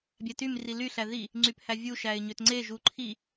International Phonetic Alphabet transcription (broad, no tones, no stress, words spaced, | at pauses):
bʲætym rily ɬæði | ŋ͡ǀyphævʲu ʃæɪ̯ɲøtŋ͡ǀe ʒuǃʰi